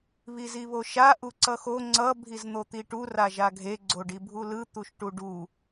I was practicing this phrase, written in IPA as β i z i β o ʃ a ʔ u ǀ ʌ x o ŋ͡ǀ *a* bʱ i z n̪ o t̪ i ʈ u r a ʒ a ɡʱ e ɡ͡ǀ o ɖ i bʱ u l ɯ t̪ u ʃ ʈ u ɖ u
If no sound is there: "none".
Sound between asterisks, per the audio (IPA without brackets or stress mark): ʌ